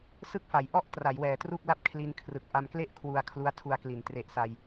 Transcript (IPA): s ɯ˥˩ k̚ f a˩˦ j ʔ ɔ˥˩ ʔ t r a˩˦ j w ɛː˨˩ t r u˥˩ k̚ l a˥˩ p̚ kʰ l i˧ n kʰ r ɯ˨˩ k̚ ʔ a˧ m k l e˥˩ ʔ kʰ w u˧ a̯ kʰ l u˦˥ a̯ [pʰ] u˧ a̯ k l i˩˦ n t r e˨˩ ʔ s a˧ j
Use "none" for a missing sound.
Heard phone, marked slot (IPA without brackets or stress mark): tʰ